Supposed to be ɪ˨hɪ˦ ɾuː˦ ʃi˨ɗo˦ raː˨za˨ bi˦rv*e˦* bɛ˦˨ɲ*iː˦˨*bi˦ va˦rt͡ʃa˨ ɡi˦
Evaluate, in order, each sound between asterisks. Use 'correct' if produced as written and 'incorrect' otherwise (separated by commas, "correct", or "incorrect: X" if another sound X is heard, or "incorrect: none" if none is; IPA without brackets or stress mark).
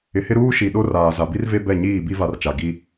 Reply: correct, correct